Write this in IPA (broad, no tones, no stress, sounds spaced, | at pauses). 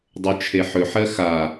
dˤ ɵ t͡ʃʰ e ħ ɵ ħ ɜ x a